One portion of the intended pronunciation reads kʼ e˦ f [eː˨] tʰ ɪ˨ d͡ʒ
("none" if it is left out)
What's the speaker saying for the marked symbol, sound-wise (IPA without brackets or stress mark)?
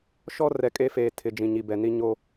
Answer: eː˨